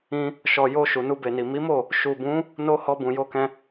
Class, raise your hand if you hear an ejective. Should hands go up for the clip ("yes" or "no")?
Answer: no